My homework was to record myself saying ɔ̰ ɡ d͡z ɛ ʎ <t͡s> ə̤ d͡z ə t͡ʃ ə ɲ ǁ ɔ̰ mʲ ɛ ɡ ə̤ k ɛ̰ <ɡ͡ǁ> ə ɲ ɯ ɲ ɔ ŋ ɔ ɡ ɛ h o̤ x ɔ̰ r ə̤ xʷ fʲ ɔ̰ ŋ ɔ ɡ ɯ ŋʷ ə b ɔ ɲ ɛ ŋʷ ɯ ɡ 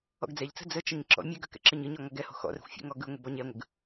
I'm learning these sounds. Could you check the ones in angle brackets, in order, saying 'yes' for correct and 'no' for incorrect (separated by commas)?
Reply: yes, no